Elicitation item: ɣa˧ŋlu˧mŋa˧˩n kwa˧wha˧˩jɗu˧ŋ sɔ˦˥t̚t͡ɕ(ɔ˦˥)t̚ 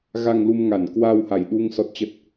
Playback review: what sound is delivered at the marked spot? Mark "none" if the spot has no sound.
ə˦˥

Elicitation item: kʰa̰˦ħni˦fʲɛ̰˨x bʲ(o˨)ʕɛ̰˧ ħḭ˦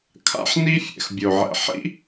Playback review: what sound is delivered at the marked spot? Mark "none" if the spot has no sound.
o˨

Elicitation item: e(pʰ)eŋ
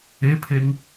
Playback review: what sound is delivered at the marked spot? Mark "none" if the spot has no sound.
pʰ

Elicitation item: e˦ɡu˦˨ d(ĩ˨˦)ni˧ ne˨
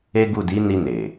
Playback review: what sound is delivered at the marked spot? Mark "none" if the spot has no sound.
i˨˦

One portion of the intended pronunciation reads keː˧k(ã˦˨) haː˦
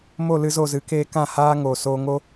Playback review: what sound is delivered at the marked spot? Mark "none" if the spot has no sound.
ã˦˨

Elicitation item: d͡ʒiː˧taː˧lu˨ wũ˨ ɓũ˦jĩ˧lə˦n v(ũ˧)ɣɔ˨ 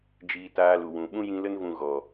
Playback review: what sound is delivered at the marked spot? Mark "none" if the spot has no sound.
ũ˧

